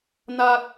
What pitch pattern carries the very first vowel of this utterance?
high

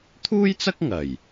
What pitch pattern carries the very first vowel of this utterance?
high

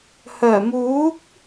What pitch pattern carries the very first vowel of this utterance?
low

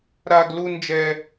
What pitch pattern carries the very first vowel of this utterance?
high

